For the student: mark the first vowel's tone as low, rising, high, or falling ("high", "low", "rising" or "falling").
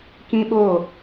high